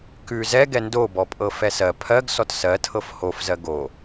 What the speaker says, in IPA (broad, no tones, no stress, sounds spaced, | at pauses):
k ʉ z ɛ ɡ ɛ n d o b ɔ pʼ ɤ f ɛ s ɜ pʰ ɜ ɡ s ɔ t s ɜ tʰ ɤ f h o f z ɜ ɡ o